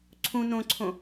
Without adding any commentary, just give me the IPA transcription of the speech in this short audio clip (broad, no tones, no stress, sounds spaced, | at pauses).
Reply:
ǀʰ ũ n õ ǀʰ õ